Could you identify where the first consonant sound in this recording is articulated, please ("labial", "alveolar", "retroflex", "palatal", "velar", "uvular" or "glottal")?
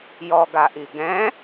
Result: palatal